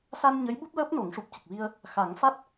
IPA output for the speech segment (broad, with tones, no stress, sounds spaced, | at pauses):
s a˧ n ɲ ə˧˥ j ɓ u˦˥ p̚ l əː˦˥ p̚ n o˨˩˦ ŋ ʂ u˨˩ p̚ c ə˨˩ k̚ v i˧ ə̯ | x a˨˩˦ ŋ f a˦˥ t̚